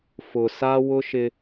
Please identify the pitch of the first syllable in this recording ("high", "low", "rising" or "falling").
low